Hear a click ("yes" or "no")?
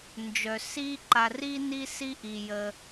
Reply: yes